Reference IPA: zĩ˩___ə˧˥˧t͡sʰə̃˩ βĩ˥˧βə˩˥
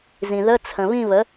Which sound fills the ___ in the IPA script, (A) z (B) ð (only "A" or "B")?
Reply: B